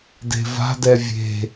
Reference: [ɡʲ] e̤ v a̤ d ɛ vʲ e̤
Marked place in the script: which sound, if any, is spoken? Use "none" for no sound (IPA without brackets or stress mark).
d